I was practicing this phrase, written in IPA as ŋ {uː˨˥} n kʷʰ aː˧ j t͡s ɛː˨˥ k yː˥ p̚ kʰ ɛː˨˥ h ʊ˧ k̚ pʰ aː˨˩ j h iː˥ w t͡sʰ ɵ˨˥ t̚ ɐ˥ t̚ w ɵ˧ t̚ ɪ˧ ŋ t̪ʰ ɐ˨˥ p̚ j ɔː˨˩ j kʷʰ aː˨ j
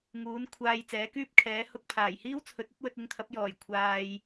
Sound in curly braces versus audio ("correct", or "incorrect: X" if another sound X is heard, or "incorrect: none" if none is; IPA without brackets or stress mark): correct